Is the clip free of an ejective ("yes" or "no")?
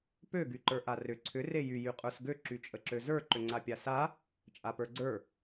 no